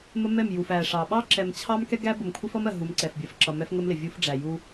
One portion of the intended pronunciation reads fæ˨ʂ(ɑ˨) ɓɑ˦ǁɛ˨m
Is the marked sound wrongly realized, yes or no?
no